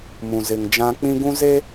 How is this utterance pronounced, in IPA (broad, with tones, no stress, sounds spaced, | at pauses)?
m ũ˨ z ɪ˨ ŋ d͡ʒ ã˦ k͡p ĩ˦ ɡ ũ˦ z e˦